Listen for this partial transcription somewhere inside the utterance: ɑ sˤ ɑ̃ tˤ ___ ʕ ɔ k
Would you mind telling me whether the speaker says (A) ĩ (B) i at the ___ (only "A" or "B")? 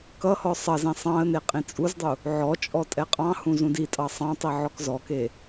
B